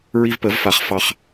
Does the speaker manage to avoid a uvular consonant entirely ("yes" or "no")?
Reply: no